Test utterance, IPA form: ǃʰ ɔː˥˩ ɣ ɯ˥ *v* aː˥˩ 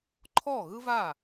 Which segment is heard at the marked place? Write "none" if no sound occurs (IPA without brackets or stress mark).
v